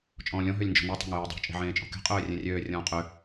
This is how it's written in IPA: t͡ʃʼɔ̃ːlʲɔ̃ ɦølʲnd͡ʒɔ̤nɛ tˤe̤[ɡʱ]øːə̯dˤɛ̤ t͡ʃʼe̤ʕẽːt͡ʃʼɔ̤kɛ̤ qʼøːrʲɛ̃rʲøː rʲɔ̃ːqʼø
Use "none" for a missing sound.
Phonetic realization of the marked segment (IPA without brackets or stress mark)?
ŋ